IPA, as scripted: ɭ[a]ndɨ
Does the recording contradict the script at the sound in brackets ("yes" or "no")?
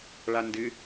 no